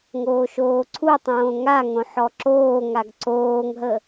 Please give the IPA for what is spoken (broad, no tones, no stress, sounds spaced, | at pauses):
ŋ oː ʃ oː ǀʰ u tˤ õː ŋ a ŋ õ ħ ɔ ǁ oː ŋ a ɡ ǀ oː ŋ ɦ ə